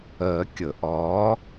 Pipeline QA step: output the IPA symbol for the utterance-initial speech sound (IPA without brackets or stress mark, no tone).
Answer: ɜ